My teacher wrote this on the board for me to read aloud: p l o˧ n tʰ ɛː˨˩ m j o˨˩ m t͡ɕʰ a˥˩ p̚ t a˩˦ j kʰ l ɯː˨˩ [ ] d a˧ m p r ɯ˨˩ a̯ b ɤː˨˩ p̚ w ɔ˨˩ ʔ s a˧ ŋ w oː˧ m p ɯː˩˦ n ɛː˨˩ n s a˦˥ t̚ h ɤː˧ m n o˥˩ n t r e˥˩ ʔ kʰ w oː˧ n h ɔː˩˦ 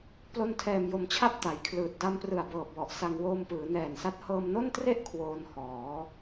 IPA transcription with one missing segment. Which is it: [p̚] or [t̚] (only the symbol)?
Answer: t̚